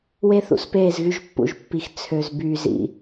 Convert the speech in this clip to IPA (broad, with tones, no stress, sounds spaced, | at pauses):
w e˦ θ ṵ˨ s p eː˦˨ z ɣ y˦ ʒ pː ṵ˨ ʒ pː i˨ x t͡sʰ ø˨ z b yː˨ z ḭ˨